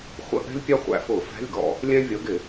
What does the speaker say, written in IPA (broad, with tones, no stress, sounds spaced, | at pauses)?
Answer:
χʷ ə̰˧˥˧ ʔ ɛ̤˥ lʲ pʲ ɑ˥ χʷ æ̰˧˩˧ f ʊː˧˩˧ f æ̤˧˥˧ lʲ ɡ ɔ̰˧˩˧ | lʲ æ̃˥ vʲ ʌ˨˥ ɡ ɪ˧˩˧